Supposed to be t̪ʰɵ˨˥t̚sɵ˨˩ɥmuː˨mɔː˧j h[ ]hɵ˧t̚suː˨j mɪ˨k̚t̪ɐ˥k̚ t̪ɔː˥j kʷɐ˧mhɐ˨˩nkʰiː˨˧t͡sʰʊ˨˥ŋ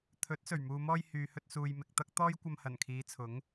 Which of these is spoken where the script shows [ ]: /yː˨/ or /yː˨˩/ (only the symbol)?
yː˨